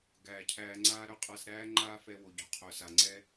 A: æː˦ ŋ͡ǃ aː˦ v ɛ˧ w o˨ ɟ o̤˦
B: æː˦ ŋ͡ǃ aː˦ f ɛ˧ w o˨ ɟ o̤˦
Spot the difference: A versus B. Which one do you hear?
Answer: B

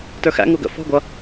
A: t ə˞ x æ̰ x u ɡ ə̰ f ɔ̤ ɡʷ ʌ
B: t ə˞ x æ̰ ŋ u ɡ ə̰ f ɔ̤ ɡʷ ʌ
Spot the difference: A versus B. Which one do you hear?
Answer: B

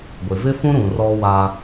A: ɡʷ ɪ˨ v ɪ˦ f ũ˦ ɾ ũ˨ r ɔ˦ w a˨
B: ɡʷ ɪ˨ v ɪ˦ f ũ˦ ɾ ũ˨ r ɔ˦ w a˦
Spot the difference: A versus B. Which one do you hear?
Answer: B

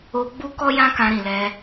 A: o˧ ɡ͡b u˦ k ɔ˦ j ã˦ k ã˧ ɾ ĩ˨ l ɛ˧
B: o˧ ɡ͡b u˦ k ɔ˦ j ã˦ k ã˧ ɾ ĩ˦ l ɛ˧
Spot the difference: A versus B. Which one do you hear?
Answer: A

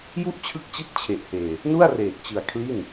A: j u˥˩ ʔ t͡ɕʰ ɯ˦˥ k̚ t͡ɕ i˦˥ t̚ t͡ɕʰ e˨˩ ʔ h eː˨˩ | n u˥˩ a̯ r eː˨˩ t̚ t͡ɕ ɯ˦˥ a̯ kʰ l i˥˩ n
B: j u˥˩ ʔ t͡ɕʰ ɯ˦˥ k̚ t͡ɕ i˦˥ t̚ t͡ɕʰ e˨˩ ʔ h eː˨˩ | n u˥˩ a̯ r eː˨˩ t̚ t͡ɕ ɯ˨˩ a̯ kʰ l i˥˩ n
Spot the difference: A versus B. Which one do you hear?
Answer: B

